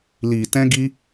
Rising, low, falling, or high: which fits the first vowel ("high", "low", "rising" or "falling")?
low